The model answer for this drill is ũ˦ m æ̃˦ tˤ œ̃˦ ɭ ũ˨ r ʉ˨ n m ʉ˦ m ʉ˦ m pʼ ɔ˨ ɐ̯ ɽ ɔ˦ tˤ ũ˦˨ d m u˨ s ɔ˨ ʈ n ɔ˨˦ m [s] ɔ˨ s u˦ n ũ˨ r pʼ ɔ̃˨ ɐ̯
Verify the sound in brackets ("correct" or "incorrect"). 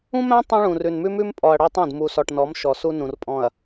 incorrect